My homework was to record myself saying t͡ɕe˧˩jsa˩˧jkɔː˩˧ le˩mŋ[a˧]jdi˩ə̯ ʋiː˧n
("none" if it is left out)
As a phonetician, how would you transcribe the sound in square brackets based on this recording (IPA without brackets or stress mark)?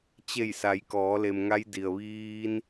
a˧